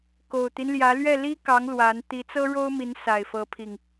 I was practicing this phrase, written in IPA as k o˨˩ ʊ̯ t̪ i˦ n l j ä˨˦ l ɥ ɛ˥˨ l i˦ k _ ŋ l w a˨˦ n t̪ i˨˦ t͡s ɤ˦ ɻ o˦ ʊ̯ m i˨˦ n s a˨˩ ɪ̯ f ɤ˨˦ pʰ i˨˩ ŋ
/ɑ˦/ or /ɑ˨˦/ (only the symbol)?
ɑ˨˦